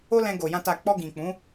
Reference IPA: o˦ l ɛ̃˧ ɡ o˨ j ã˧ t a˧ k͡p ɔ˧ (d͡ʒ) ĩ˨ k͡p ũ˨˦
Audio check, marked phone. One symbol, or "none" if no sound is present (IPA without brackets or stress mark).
ɡ